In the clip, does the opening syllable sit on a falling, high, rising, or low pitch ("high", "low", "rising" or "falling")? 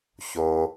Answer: low